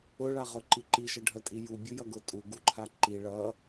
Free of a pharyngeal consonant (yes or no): yes